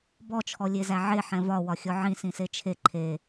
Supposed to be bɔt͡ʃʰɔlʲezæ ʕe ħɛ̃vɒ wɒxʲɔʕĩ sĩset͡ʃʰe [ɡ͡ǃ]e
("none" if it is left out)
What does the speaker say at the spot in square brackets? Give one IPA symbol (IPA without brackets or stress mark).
ǃʰ